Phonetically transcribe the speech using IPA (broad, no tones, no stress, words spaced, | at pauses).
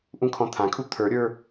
ʔũkʰɔ̃t̪ʰãkʰu t̪ʰə˞ɾʲə˞